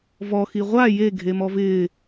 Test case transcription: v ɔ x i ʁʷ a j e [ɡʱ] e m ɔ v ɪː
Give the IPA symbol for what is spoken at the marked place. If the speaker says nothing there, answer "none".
ɡʱ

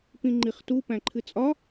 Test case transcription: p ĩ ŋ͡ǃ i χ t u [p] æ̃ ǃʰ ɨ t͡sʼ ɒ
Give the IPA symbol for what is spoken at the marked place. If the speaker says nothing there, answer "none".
p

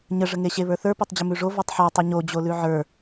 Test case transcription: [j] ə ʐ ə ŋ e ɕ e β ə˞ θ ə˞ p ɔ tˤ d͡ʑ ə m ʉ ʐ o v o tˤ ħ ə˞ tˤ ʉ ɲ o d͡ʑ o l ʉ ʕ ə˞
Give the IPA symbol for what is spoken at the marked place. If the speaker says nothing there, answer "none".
ɲ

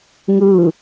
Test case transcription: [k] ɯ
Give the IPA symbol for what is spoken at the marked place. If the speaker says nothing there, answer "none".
ŋ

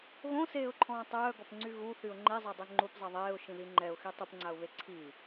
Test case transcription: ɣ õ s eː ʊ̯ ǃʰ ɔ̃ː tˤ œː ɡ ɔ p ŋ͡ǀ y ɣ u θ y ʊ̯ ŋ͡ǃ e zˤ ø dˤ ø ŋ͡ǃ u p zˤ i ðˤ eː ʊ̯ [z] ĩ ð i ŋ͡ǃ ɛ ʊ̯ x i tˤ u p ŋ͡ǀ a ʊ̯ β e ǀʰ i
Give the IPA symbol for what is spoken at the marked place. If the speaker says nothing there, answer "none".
ʃ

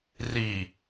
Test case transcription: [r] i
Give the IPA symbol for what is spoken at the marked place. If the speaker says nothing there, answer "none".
r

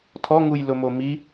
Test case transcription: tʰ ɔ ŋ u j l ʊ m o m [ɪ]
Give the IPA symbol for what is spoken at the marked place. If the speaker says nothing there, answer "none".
i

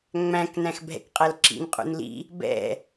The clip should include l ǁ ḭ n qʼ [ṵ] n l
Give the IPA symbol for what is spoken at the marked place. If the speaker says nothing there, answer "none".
ṵ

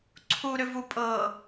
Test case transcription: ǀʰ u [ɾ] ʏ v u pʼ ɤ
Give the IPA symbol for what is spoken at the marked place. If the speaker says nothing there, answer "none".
ɾ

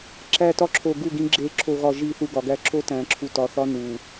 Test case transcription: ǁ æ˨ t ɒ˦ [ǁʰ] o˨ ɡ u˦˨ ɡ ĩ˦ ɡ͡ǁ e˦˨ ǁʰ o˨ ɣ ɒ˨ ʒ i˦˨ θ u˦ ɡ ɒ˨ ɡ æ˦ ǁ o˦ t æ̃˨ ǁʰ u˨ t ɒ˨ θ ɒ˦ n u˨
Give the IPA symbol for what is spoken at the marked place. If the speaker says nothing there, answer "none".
ǁʰ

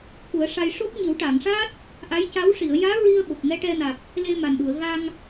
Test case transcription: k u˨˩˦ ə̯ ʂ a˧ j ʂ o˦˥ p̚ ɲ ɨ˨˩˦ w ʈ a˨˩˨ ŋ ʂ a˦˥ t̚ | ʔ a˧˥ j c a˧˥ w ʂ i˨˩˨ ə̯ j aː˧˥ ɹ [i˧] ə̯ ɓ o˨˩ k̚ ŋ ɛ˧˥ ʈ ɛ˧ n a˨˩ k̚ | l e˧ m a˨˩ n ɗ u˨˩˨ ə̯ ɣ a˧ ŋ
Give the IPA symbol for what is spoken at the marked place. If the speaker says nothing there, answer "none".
i˧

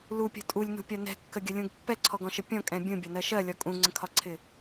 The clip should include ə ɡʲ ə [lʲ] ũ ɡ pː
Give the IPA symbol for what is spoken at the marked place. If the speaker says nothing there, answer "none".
lʲ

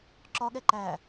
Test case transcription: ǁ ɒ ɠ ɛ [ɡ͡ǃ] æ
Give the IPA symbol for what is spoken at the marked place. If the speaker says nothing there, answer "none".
ǃ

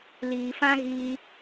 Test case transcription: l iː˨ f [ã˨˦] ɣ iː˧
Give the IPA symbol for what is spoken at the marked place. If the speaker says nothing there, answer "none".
ã˦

